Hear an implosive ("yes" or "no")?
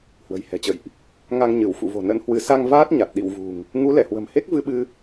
yes